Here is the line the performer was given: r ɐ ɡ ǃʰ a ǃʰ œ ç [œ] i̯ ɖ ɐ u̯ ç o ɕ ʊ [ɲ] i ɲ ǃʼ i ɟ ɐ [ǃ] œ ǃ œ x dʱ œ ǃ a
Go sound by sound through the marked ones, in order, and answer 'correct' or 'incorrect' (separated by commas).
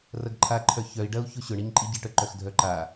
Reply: correct, incorrect, incorrect